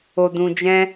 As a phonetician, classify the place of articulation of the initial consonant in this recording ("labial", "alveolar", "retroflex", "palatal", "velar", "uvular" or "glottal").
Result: alveolar